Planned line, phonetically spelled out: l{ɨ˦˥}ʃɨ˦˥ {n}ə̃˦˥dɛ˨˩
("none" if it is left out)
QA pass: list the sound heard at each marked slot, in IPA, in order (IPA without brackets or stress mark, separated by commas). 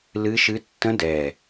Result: ɨ˦˥, tː